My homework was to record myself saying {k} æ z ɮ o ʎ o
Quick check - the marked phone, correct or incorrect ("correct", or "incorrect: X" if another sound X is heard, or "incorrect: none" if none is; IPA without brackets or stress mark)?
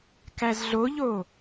correct